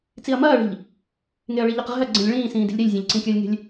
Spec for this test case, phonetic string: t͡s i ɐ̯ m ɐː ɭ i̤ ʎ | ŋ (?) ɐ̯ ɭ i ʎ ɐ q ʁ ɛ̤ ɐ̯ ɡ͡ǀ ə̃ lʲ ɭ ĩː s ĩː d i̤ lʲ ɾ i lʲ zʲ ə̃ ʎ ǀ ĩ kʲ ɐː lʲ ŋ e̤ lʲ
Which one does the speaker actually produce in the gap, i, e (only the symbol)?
e